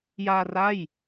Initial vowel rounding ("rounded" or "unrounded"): unrounded